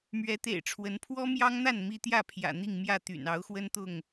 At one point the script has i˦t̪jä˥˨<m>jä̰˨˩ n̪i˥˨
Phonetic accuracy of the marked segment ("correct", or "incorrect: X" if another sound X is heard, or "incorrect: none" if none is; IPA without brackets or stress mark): incorrect: pʰ